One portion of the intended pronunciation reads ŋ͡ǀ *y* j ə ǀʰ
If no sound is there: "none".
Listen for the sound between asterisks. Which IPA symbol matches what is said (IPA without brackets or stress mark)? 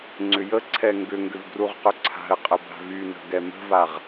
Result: ʏ